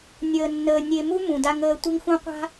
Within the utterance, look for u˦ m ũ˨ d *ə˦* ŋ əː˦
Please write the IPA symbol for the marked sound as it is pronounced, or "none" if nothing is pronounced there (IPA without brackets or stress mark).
a˦